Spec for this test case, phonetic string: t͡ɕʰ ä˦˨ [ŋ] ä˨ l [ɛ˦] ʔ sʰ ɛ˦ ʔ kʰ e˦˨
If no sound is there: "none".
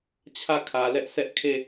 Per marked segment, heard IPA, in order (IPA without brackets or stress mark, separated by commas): kʰ, ɛ˦